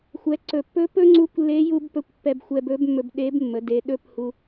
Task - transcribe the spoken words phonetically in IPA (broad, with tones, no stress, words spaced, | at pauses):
xʷɛ˩˧ǀɵ˩pːɵ˧˥ pɵ˥ŋ͡ǀu˧˥kʷlːe˧˥ju˧b pɵ˧˥kʷpːɛ˧bxʷɛ˧bɵ˧˥b mːɵ˧bɗe˧˥bmːə˩˧ de˩˧ɗɵ˧˥p hu˧